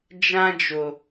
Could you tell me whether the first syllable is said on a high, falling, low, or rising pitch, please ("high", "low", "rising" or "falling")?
high